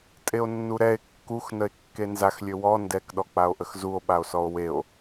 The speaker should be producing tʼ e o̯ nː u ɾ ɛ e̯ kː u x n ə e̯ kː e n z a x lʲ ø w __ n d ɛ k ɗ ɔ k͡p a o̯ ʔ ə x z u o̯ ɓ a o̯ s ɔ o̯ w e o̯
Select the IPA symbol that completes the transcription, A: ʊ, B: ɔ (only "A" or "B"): B